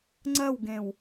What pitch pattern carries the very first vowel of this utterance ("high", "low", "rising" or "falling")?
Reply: falling